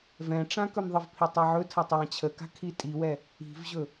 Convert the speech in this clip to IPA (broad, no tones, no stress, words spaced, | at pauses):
vɛ̃ʈ͡ʂã kɵmðˤəvpʰi tˤɛʕɵtʰatˤ jãt͡ɕʰəka̤ kʰitʼiwɛ | i̤vʑɵ